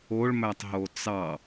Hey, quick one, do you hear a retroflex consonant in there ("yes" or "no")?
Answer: yes